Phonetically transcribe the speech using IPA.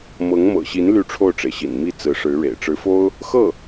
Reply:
m ɤ˧˥ ŋ m ɤ̰˨˩ ɕ i˧˥ n l y˥˧ ʈ͡ʂʰ o˥˩ ʊ̯ ʈ͡ʂ e˩ ɪ̯ ɕ ḭ˨˩ n m i˥˩ t͡s ɹ̩˧˥ ʂ ɻ̩˧˥ ɻ ḛ˨˩ ɪ̯ ʈ͡ʂ ɻ̩˧˥ f o˥ ʊ̯ | x ɤ˥˩

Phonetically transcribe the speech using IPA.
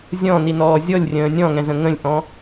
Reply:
zʲ ɔ̃ n i n ɔː zʲ ɔ lʲ rʲ ə̃ː nʲ ɔ̃ ŋ ɛ̃ z ə̃ ŋ ə̃ lʲ ʔ ɔ̃

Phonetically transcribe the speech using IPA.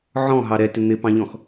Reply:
ʕ ɔ̃ ɦ ɑ ɾ ɛ t ɪ n̪ ɪ p ɑ̃ ʎ ɔ̃ x

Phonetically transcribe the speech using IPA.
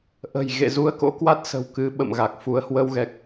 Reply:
ʔ ə̤˨˩ j ɣ ḛ˧˨ z u˧ ə̯ k o̰˧˥ k w a˦˥ t̚ s ə̤˨˩ w k ɨ˨˦ ɓ ə̰˧˨ m ɣ a˨˩ k̚ f u˨˦ ə̯ h w ə˧ w ɣ ɛ˨˩ k̚

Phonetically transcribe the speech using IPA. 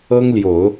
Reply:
ɤ˥ ŋ l j o˨˩˦ ʊ̯

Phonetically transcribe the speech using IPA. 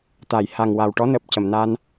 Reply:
t̪ a˨˩˨ j h a˨˩ ŋ w a˨˩ w ʈ ɔ˧˥ n əː˨˩ p̚ c ə˨˩˨ m n a˧ n

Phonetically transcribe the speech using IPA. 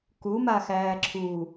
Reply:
k u m a x æː ǁʰ u

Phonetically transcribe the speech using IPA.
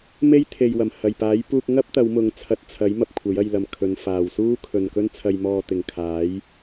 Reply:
m e˥ j t̪ʰ e˨ j w ɐ˨˩ m h ɐ˨˩ j p aː˨˥ j p uː˧ k̚ ŋ ɐ˥ p̚ t̪ ɐ˨˧ w m ʊ˨˧ ŋ t͡sʰ ɐ˨˥ t̚ t͡sʰ ɐ˨˥ j m ɐ˧ p̚ kʷʰ ɐ˨˥ j ɐ˧ j l ɐ˨ m kʰ ɵ˨˧ n f aː˨ w s uː˥ kʰ ɵ˨ n k ɵ˥ n t͡sʰ ɐ˧ j m ɔː˧ t̪ ɪ˨ ŋ kʰ aː˨˥ j

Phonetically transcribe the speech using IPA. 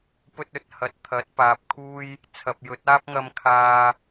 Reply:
p ɵ˥ t̚ ɵ˨˥ t̚ h ɐ˨ t̚ t̪ʰ ɐ˨˥ t̚ p aː˧ p̚ kʰ uː˥ j | t͡sʰ ɐ˨ p̚ j ɵ˨˥ t̚ aː˥ p̚ ŋ ɐ˧ m kʰ aː˨

